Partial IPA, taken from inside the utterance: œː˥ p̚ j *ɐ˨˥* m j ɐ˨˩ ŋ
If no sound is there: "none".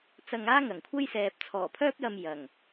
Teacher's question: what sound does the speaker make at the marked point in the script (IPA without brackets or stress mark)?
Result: ɐ˧